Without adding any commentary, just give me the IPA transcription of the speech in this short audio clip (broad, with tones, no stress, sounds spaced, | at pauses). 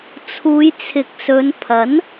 t͡sʰ uː˨˧ j t͡sʰ ɪ˨ k̚ s ɵ˨˧ n pʰ ɐ˨˥ n